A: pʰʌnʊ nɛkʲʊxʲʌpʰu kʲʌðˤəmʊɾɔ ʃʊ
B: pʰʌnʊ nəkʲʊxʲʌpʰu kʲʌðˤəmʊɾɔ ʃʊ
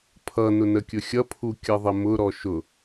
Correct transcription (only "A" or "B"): B